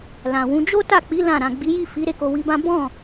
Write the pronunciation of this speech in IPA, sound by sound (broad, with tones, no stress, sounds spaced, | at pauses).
l ã˨ w ũ˨˦ d͡ʒ o˦ t a˦˨ k͡p i˨˦ l ã˦˨ ɾ ã˨ ɡ͡b i˨˦ j i˦˨ f i˨˦ ɾ e˦˨ k o˧ w i˧ b ã˦ b ɔ̃˦˨